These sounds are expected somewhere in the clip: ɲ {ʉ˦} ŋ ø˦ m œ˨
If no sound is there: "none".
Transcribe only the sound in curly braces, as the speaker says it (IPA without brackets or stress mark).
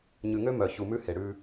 ʉ˨